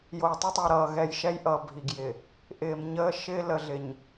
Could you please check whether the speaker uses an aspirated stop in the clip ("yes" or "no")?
no